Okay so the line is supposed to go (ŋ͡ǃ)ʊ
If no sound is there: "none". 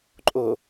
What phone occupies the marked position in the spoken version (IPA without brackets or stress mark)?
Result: ǃʼ